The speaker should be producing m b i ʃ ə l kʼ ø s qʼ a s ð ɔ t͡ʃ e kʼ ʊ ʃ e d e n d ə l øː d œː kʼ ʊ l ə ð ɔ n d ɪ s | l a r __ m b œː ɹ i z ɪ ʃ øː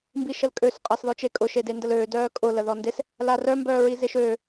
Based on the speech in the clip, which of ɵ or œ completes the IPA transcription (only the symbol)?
œ